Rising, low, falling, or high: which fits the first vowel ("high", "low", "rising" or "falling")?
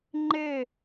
falling